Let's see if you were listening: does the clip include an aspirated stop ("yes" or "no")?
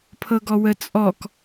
yes